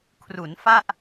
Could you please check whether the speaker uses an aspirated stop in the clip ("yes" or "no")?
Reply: yes